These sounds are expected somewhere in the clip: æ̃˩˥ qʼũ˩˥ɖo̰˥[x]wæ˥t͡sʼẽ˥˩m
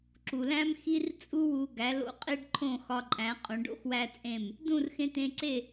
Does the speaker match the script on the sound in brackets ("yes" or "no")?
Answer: yes